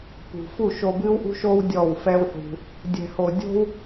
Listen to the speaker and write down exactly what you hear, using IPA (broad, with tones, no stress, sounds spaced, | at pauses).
p ṳ˨ f u˦˨ ʃ o˧ b ɨː˦ w ʔ ṳ˦ ʃ oː˦ w dʲ ɔ˦˨ w f ɛ˦ w ħ ṳ˧ | dʲ ɛ̤˨ h o˨ dʲ o̤˦ w